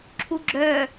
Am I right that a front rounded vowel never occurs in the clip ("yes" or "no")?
no